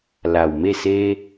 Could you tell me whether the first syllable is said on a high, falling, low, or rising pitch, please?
low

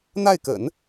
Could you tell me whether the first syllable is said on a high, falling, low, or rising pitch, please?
falling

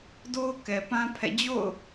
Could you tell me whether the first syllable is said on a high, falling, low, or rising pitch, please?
high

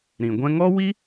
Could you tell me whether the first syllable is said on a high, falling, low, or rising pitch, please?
low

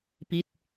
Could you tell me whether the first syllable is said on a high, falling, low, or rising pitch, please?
falling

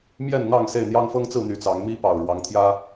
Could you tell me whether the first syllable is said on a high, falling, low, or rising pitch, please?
falling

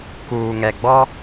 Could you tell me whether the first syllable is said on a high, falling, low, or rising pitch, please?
low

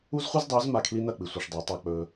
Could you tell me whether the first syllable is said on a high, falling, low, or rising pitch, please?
high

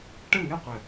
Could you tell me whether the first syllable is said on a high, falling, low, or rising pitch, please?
falling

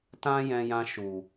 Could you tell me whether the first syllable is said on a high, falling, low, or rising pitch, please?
high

